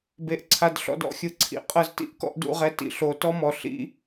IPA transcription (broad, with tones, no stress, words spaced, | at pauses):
be˧ʔǀʰa˧d ɬɔ̰˧d ɔ̰˦xʲɯ˨ǀʰḭ˨ qʼɤ˧z tḭ˦ʔkɔ̰˧ʔdṵ˦˨ʁɛ˧ tḭ˨ɬo˨˦ tɔ˦mɔ˨ ɬḭ˧